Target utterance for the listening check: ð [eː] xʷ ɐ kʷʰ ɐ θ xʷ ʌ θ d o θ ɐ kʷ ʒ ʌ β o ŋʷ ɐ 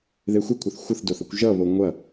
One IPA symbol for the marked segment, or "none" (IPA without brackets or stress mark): e